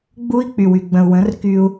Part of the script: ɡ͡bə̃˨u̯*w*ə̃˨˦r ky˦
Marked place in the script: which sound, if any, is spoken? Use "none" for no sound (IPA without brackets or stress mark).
w